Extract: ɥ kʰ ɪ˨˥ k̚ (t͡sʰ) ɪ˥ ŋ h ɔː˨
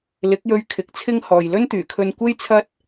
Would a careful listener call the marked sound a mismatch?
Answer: no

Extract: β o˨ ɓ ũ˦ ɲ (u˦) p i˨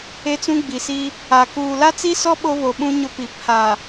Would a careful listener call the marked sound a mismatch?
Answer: yes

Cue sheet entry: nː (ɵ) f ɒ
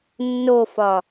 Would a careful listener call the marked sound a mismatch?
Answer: yes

